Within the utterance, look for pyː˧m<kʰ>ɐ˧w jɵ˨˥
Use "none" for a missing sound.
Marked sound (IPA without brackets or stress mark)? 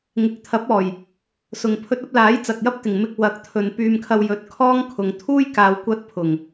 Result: kʰ